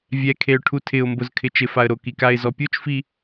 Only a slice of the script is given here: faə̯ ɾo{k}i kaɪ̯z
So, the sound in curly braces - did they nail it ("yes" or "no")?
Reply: yes